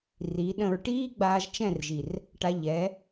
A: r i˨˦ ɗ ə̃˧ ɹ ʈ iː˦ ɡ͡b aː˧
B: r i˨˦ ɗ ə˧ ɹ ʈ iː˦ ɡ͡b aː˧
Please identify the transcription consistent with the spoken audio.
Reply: A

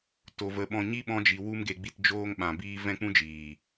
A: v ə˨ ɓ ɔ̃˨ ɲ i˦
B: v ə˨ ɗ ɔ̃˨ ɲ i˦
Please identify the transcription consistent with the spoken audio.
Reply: A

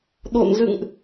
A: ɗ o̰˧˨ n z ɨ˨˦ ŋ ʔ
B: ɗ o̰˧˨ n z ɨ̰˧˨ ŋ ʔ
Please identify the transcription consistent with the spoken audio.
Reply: B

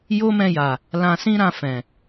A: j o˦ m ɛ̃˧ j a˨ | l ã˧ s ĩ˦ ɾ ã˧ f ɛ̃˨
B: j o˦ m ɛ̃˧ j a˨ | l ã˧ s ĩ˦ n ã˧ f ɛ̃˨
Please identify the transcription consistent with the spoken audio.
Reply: A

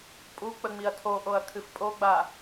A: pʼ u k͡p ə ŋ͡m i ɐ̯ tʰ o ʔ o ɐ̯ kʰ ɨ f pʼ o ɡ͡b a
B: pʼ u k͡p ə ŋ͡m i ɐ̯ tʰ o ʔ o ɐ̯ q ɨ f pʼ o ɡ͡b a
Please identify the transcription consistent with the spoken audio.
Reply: A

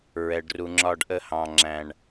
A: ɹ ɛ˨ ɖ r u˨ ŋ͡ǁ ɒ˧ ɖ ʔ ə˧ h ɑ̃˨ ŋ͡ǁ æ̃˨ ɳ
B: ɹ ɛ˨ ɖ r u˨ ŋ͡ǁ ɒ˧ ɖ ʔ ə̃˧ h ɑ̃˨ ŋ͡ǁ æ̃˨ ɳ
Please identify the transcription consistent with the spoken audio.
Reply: A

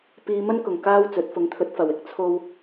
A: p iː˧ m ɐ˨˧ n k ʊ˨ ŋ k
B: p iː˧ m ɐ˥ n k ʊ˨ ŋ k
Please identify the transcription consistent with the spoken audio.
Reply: B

